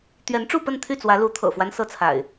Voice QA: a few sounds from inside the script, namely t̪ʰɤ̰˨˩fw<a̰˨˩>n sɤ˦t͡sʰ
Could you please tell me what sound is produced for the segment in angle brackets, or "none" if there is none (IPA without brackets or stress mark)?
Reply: a˦